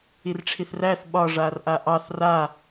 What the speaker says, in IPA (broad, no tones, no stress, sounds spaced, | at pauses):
i r ʈ͡ʂʰ i θ r æ θ ɓ ɒ ʐ a r ʔ a ʔ ɑ θ r a